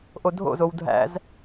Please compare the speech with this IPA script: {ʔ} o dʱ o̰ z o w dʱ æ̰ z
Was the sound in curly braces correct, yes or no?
yes